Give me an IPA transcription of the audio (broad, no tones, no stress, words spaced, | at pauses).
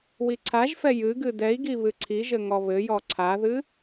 wiǀʰaʒfɛ jɨ ɡɨdɛi̯ɡi βɨǀʰiʒɘ ŋɔβɘjɔ ǀʰaðɨ